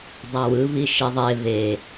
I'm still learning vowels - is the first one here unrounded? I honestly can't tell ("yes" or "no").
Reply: yes